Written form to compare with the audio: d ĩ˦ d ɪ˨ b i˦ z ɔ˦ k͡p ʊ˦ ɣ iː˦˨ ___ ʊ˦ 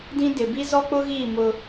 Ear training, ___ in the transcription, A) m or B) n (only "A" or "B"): A